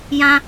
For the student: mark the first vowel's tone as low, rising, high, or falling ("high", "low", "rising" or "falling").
high